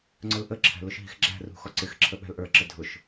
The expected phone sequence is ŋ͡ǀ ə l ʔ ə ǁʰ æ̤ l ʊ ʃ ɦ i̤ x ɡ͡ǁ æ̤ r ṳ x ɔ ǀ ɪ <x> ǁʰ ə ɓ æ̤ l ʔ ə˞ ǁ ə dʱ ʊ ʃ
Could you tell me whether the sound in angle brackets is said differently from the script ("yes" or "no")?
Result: no